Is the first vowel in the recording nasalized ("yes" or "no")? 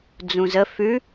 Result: yes